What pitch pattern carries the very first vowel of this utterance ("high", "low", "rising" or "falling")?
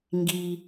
low